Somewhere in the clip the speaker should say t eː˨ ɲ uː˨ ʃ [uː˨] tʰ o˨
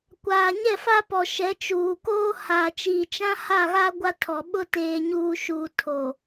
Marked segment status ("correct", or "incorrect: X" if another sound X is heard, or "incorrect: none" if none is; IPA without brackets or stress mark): correct